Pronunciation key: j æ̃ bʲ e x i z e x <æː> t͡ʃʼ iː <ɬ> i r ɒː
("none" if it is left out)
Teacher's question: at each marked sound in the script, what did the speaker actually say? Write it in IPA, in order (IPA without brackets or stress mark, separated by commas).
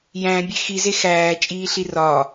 æː, ɬ